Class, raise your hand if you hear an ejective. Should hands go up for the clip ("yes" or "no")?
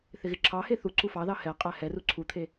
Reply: yes